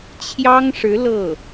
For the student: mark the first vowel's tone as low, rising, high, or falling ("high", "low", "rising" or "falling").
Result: high